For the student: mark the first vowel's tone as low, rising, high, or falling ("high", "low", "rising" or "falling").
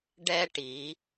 high